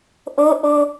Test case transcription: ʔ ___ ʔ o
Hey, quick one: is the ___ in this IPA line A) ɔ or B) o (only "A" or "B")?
B